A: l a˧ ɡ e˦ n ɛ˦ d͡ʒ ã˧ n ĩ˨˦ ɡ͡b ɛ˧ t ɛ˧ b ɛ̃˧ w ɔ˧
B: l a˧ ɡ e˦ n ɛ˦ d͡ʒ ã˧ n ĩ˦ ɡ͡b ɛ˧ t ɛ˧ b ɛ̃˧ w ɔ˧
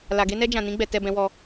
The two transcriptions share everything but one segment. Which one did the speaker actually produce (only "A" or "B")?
B